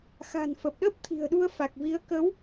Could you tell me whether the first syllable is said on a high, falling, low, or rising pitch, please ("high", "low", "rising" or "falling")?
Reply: low